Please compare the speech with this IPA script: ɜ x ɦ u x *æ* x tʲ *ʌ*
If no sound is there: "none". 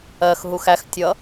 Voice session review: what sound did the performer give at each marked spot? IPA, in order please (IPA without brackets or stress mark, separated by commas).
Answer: æ, ʌ